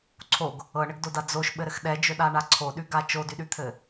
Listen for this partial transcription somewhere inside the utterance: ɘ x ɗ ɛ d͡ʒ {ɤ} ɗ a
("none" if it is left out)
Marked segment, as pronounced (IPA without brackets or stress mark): ɵ